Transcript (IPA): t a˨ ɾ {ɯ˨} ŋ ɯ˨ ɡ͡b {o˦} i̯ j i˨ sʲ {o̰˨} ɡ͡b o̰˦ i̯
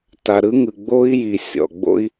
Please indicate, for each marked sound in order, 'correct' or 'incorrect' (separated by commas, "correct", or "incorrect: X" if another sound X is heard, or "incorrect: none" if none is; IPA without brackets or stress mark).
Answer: incorrect: ɯ˦, correct, incorrect: ɔ̰˨